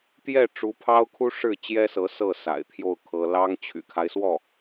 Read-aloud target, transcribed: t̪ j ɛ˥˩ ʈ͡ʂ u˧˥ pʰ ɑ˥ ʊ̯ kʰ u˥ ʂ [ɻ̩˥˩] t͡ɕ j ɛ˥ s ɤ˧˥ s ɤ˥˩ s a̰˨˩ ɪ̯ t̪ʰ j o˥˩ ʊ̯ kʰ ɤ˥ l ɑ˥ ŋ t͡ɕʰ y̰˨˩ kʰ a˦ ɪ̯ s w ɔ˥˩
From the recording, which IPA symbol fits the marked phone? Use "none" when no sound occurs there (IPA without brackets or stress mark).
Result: ɻ̩˥˩